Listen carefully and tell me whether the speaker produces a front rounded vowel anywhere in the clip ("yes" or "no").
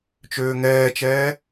yes